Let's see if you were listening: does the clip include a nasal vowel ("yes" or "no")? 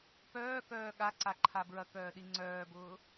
no